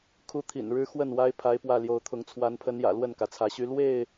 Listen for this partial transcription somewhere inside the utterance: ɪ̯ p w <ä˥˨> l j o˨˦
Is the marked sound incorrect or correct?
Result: correct